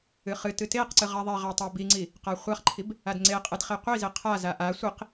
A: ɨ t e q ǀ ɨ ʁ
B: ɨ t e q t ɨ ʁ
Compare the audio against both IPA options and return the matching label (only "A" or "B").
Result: A